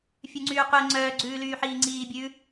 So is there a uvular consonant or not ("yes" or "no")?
yes